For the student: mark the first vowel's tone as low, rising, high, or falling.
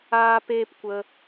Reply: high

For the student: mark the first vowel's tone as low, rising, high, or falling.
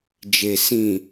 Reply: low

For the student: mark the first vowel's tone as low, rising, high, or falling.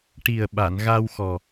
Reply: low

